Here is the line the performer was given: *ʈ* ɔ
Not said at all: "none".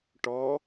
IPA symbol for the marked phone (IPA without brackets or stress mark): ʈ